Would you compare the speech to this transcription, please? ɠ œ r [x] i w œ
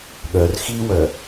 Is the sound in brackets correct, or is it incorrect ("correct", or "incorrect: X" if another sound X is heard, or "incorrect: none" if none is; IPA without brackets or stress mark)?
correct